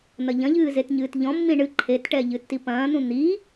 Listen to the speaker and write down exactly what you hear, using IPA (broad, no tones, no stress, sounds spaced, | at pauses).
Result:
n̪ ɐ ʎ ɐ̃ ʎ ɨː z e t ɲ ɨː t ʎ ɔ̃ mː ĩ ɳ ɨ ǃʰ e t ʈ ɛ ʎ ɨ tː i p ɐ̃ː n̪ ũ n̪ i